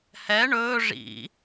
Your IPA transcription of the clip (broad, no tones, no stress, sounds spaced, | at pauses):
h ɛ ɳ ɵː ʐ ḭ